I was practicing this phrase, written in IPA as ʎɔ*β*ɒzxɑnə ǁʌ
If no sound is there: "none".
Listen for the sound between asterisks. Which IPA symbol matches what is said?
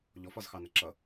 f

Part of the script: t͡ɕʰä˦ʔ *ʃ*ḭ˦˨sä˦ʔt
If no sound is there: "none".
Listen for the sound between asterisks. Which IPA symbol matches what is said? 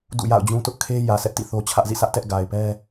z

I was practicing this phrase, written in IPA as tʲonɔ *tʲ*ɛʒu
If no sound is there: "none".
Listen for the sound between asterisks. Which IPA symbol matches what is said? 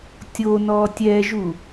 tʲ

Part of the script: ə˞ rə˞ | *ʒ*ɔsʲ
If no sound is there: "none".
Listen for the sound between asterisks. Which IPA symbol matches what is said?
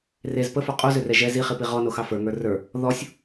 ð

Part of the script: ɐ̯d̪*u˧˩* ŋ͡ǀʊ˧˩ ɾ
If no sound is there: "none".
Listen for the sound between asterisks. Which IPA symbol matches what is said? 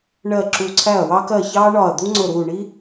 u˥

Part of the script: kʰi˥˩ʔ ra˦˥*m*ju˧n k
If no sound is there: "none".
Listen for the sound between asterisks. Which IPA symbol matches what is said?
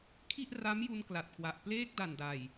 m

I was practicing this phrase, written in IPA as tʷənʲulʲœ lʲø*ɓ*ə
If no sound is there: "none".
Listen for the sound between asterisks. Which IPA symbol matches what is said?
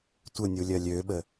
ɓ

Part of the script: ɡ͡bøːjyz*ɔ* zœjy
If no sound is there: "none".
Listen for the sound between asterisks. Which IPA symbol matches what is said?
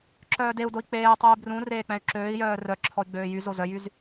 o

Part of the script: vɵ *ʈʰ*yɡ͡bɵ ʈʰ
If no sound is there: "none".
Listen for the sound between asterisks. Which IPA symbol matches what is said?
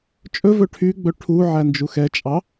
ʈʰ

